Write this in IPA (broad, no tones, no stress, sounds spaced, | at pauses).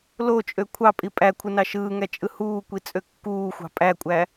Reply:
l o t͡ʃʼ ø kʷʰ ɑ pʼ i pʼ æ kʷʰ ɯ n ɑ ʃ ɯː ŋ æ t͡ʃʼ ɯ h uː kʷ i t͡sʼ ø kː uː xʷ ɑ̤ pʼ æ kʷʼ æ